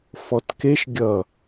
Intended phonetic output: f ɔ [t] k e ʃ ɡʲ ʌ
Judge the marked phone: correct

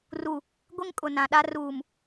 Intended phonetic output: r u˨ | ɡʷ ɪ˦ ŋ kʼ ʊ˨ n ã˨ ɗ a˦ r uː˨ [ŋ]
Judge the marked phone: incorrect: m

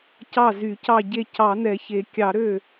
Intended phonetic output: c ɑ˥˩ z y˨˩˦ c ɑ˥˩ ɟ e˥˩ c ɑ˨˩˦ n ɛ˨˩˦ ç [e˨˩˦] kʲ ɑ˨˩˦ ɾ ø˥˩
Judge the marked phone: correct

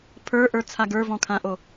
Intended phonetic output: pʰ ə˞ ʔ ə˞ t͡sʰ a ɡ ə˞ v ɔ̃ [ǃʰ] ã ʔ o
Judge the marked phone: incorrect: kʰ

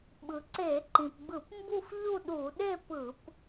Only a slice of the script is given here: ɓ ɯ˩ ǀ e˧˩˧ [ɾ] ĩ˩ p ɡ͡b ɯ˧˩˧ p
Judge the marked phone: incorrect: ǃ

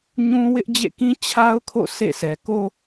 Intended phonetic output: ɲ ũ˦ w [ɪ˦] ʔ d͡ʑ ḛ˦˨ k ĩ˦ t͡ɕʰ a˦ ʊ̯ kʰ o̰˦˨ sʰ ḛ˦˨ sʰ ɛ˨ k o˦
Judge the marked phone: correct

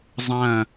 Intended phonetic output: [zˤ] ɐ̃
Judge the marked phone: correct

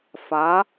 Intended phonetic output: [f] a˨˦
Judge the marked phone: correct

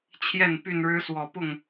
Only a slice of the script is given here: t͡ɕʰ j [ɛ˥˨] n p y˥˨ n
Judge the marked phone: correct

